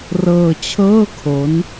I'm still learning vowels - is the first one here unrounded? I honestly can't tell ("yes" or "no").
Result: yes